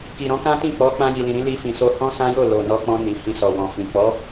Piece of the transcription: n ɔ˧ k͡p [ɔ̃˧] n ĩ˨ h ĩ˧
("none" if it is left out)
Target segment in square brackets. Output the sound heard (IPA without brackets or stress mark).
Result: ɔ̃˧